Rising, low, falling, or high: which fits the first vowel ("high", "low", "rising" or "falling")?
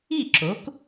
falling